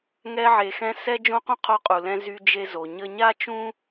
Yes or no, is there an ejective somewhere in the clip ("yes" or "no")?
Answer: yes